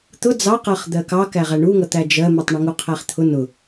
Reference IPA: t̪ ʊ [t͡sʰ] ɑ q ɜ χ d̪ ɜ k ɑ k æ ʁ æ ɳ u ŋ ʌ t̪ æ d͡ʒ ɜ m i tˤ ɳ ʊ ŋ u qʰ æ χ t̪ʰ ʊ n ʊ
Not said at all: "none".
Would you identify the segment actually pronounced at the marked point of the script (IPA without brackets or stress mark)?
d͡z